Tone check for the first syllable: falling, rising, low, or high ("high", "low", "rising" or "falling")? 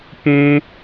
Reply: high